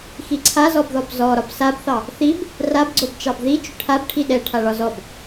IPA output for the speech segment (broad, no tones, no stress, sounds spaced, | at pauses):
x i ǀʰ a z ɔ b ð ɔ b z ɔ ɾ ɒ b s a b θ ɑ | θ i b | r a b ɡ͡ǀ o b t͡ʃ ɑ b ð i t͡ʃ ʏ ʈʰ a b ʈʰ i ɗ ɛ ʈʰ a ɭ ɒ z ɔ b